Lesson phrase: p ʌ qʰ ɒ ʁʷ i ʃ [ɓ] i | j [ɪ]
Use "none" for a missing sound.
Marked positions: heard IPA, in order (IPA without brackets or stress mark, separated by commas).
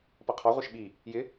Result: ɓ, ɪ